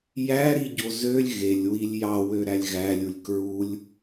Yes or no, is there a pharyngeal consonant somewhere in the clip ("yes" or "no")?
no